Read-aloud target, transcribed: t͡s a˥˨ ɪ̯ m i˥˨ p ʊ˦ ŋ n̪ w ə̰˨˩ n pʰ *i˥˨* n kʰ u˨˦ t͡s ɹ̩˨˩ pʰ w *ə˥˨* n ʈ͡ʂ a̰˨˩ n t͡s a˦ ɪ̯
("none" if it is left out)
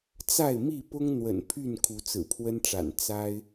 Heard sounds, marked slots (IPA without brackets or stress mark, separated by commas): y˥˨, ə˦